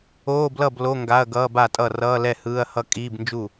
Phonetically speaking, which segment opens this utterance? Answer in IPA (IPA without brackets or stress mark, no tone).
oː